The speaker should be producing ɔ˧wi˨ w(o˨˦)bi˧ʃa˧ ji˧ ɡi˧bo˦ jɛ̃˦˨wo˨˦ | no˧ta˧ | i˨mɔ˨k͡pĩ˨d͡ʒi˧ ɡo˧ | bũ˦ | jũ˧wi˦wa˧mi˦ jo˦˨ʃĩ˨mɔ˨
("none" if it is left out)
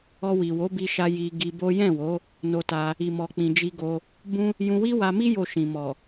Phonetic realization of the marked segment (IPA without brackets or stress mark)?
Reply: o˨˦